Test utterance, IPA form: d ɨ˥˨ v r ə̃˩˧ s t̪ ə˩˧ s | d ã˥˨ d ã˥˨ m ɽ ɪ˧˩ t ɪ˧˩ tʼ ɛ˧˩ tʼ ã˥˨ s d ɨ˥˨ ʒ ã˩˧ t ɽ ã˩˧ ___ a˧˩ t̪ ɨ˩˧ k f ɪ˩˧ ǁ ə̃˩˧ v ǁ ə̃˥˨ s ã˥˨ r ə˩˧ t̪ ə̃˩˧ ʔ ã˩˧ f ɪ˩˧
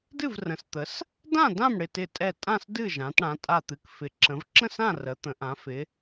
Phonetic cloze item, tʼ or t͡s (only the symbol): tʼ